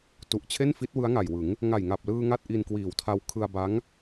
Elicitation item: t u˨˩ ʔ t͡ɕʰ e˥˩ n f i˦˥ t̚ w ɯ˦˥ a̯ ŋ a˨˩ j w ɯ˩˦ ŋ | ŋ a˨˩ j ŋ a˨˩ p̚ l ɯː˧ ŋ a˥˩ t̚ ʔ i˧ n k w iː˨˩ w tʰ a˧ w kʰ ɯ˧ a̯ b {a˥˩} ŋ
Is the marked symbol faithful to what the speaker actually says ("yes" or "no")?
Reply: no